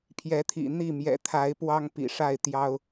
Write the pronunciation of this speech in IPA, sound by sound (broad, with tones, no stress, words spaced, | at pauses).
pʰjɛ˨˦t̪ʰḭ˨˩ n̪i˥˨ mjɛ̰˨˩t̪ʰa˨˦ɪ̯ pwɑ˦ŋpḭ˨˩ ʂa˥˨ɪ̯t̪jɑ˦ʊ̯